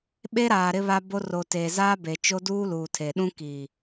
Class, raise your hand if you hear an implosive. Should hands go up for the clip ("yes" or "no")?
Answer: yes